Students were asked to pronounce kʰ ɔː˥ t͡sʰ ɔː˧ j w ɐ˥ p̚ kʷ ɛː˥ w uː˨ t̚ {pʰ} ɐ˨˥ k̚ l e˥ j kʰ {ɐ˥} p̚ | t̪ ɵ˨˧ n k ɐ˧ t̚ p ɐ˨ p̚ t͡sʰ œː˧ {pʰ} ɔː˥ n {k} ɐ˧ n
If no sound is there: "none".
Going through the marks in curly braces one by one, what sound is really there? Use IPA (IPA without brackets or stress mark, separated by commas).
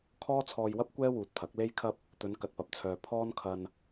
pʰ, ɐ˥, pʰ, kʰ